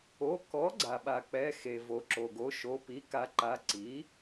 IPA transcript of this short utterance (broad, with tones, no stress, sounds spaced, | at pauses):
o˩˧˩ k ɔ˩˥ ɡ͡ǀ a˩ ɓ a˩ k͡p ɛ˩˧˩ x e˩ v o˩ ǁ o˩ ɡ o˩˥ ʃ o˩˧˩ p i˩˥ k a˩˥ ǃ a˩˧˩ ǀ i˩˥